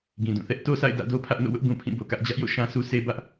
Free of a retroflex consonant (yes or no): yes